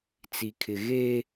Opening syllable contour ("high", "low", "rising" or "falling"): high